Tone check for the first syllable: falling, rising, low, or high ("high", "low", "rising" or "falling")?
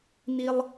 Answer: high